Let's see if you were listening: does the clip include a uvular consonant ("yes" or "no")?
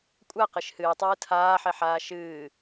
yes